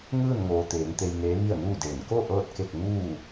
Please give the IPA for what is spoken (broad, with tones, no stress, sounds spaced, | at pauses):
ŋ ɯː˥˨ n ŋ oː˩ t̪ eː˩˧ ŋ t̪ e˧ j n eː˧˥ ʋ i˥˨ ə̯ n uː˥˨ d eː˧˩ n k o˥˨ ʔ ɤː˥˨ t̚ k e˥˨ k̚ ŋ uː˥˨